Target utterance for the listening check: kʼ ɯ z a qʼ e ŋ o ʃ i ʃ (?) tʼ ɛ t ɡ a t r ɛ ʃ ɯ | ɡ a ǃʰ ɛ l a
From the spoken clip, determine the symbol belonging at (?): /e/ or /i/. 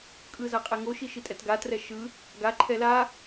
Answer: i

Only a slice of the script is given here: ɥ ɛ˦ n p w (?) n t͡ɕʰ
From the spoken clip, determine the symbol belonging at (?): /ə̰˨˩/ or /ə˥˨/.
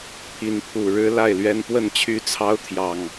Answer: ə˥˨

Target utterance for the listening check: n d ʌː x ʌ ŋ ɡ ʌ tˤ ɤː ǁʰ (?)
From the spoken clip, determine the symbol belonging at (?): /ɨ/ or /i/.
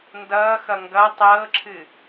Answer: ɨ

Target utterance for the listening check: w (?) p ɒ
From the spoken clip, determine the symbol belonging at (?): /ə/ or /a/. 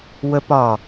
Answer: ə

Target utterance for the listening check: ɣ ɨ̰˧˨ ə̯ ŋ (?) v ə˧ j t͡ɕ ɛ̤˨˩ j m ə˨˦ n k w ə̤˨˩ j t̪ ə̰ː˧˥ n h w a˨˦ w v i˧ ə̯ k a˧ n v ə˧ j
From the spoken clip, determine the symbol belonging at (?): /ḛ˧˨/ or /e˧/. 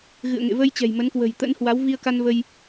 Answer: ḛ˧˨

